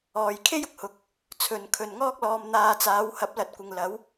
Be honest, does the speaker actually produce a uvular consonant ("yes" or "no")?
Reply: no